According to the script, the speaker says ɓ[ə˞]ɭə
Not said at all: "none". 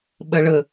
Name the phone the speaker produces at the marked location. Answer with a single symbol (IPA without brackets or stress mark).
ɜ